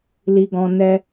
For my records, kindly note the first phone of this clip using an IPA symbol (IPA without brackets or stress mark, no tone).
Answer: l